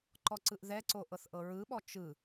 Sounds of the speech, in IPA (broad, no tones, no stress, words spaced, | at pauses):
ǃɔǀɯʔðɛǀo ʔɤθʔɤɹɯɓɔ t͡ʃɯ